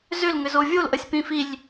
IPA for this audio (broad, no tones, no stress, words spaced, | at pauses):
zʏl ŋʏzovʲol ʔəsʲpĩfilʲ